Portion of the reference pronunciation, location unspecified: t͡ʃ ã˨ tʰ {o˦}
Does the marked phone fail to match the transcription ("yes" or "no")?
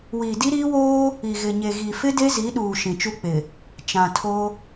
no